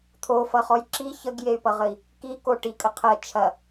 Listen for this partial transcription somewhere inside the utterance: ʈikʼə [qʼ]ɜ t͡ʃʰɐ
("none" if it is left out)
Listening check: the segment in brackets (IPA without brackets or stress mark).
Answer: qʰ